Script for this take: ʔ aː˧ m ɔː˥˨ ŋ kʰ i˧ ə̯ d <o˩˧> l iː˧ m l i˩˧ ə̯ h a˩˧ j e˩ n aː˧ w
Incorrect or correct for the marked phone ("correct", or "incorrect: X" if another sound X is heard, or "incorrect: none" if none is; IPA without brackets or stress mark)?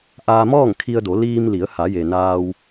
correct